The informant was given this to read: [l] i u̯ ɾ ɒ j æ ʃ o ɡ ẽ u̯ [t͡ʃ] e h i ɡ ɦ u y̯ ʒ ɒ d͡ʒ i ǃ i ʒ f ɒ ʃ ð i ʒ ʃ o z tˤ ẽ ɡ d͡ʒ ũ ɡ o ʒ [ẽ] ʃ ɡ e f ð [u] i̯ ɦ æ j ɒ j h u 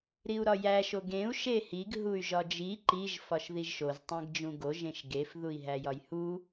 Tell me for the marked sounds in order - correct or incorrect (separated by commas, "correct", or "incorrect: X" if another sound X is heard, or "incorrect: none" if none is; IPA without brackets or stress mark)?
incorrect: ɾ, incorrect: ʃ, correct, correct